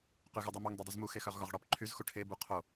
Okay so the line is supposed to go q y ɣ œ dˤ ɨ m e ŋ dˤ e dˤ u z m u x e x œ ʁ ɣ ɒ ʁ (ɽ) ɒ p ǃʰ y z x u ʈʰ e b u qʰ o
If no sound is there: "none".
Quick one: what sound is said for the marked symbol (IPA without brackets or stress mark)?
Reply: ɽ